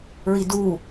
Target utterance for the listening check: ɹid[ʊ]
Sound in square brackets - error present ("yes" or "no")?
yes